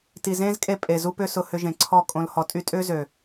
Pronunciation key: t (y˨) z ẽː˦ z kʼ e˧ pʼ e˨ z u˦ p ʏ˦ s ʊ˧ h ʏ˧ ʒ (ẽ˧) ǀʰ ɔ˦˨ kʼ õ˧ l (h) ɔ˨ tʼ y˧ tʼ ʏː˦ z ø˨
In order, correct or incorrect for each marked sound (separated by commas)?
incorrect, incorrect, correct